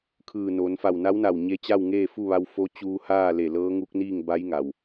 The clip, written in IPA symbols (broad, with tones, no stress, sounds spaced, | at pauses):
kʰ ɯː˧˩ n o˩˧ n f a˧˩ w n a˧˥ w n a˧˩ w ɲ e˧ t͡ɕ a˥˨ w ŋ eː˥˨ f u˥˨ ʋ a˧ w f o˧˥ t͡ɕ uː˧ h aː˥˨ l e˧˩ l ɤː˧˥ ŋ u˧˥ k̚ n iː˥˨ ŋ b a˧˥ j ŋ a˩ w